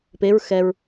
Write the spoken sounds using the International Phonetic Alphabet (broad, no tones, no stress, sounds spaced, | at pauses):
p e ɹ x ɛ ɹ